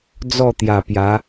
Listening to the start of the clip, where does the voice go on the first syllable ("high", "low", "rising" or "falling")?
falling